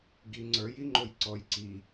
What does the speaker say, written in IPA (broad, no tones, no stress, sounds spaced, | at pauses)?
ɡ i ŋ͡ǀ ə˞ j i ŋ͡ǃ o j ǀ ɔ j ǀ i